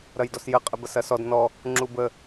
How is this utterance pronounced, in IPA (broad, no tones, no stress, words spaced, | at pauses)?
ɾɐjdɔsjə qʼəbɐsɐsɔd nɔ | ŋ͡ǁubə